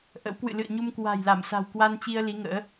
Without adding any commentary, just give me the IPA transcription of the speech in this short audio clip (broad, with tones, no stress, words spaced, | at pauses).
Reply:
ʔə̰˧˥w kwɨ̰˧˨lɨ̰˧˨ə̯ɲu˧m kwa̤˨˩jla˧˩msa̤˨˩w kwa˧nt͡ɕi˧ə̯ li˨˦ŋə̰ː˧˥